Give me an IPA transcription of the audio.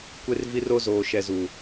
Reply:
kʷ e˦ r v i˦ r o˦ z oː˨ ʃ ɛ˨ z uː˨

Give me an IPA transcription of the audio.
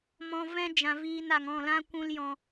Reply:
m ɔ̃˧ v ɛ̃˦ d͡ʒ ã˨ v iː˧ n a˨ ŋ ɔ̃˦˨ l ã˦ kʷ ũ˦ l j ɔ̃˧

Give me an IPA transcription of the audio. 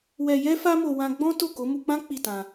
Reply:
w ɛ˧ j ɛ˦ f a˦ m o˧ w ã˧ ɡ͡b ɔ̃˦ t o˦˨ k o˨˦ m u˧ k͡p ã˦ k͡p i˦˨ t ã˧

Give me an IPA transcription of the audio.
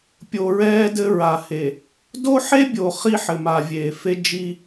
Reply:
pʲ o˨ ɹ ɛː˦ d ɘ˦ ɹ a˨ h e˨ | d o˦ ħ e˦ bʲ o˨ χ i˦ ħ ɘ˨ m a˨ vʲ eː˨ f e˦ d͡ʒ i˦

